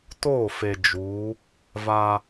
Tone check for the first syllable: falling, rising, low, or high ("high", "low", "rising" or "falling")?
falling